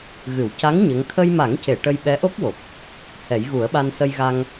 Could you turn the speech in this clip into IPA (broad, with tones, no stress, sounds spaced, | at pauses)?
ɣ ɨ˨˩˨ w c a˧˥ ŋ ɲ ə˧˥ ŋ t̪ʰ ə˧ j m a˨˩˦ ŋ c e˨˩˨ ʈ ə˧ j ɓ ɛ˧˥ ʔ o˦˥ k̚ w o˨˩ k̚ | h ɛ˨˩˦ j ɣ u˨˩˦ ə̯ ɓ a˧ n s ə˧ j ɣ a˧ ŋ